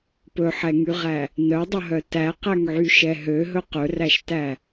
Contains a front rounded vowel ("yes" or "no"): yes